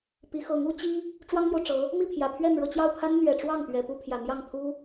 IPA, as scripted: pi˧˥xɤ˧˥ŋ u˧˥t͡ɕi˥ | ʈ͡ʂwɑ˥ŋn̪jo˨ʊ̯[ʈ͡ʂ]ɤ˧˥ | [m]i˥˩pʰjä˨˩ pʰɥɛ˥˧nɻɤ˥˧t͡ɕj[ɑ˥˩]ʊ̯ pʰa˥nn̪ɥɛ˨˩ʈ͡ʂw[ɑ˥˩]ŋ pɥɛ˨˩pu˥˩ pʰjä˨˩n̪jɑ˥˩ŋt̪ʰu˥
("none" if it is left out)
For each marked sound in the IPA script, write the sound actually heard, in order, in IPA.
ʈ͡ʂ, m, ɑ˥˩, ɑ˥˩

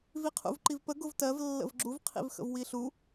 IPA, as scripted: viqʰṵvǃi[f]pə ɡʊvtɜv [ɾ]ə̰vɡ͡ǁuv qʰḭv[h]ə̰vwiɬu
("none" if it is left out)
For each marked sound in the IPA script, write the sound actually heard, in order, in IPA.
v, lː, x

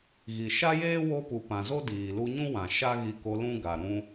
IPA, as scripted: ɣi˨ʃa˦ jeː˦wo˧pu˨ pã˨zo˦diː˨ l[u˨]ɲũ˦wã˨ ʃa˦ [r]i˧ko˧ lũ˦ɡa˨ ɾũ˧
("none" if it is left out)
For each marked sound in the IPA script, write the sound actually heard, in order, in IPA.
u˧, ɣ

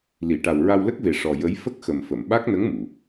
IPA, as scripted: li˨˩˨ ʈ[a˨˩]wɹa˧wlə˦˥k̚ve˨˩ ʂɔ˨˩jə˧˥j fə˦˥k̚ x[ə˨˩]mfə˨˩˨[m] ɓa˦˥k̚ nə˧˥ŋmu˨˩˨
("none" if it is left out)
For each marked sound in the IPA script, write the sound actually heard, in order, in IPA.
a˨˩, ə˨˩, m

